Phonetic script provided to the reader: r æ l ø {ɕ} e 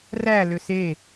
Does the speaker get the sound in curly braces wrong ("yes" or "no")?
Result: yes